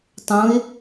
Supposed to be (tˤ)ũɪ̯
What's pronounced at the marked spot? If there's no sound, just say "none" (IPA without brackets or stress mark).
tˤ